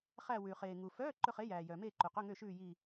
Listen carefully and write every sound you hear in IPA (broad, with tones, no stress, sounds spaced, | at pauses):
χ æ˦˨ w ʉː˩ χ eː˩ ŋ u˩ f œː˧˥˧ ǃ ɵ˦˨ χ e˨˥ j æː˩ j œː˩ m eː˦˨ ǃ ʉ˩ q ɵ˧˥˧ ŋ ø˦˨ ʃ ʉː˦˨ j i˦˨